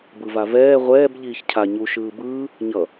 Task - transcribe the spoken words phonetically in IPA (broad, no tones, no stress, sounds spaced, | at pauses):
b ɯ v a v ɛː ʁʷ ɛː b ʎ iː ç cʰ a ɲ u ʃ ɯː b ɯː | ɲ ʌ